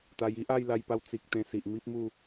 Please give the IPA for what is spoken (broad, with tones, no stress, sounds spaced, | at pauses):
t̪ a˧ j i˦ ʔ a˥˧ j l a˧ j p a˧ w t͡s i˨ k̚ t̪ ẽ˧ s i˨ ʔ m i˦ p̚ m u˥˧